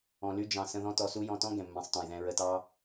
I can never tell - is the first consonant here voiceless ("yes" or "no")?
no